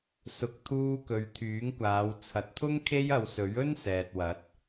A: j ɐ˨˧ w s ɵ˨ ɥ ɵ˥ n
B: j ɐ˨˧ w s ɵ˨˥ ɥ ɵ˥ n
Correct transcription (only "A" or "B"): B